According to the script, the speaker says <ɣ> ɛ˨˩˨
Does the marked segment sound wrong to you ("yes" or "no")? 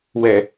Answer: yes